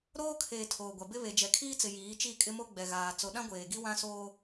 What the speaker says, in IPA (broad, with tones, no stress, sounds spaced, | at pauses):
ɾ oː˦ kʰ eː˨ tʰ oː˨ ɡʷ a˨ b ɪ˦ β e˨ d͡ʒ ɛ˨ kʰ iː˦ t͡s ɪ˨ j iː˨˦ t͡ʃ i˦˨ kʼ ɪ˦ m o˦ ɡ͡b ɛ˨ ɣ aː˨ t͡s o˨ ɗ ã˦ ɡʷ eː˨ ɡ i˦ w ã˦ s oː˦